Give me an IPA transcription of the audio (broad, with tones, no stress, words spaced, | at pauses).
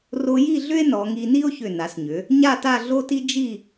ro˧ji˥˧ ɮʏ˥e̯ nɔ˩˧ŋi˧ ni˥o̯çʏ˧˩na˩˧sɲʏ˩˧ | ɲa˥˧ta˥˧ɮo˥ti˥ d͡ʒi˥˧